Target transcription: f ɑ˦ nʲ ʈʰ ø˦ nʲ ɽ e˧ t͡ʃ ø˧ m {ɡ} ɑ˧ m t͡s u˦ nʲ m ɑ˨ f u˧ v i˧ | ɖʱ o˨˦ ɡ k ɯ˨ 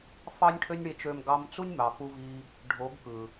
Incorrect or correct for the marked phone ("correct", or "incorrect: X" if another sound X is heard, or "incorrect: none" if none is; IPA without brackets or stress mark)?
correct